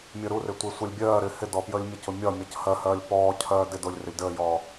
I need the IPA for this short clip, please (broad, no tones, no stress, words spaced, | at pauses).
mʲəɾurɪ tʷɪːsʷəlʲbʲɜːɾɪː hɪdɔ pjəːlʲmʲəcʊ mʲɒmʲʌc hɜhɜːlʲ pɔːcʰɜː dɪ dʊlʲ rɪlʲdəːjɔː